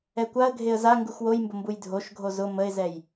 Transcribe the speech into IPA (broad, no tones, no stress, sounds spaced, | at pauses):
ɛ kʷ a ə̯ ɡʱ e ə̯ z a ŋ ɡ u x w o j m b ʊ m b u j dʱ o ʃ ɡʱ o z ʊ m ə ɪ̯ z ɛ j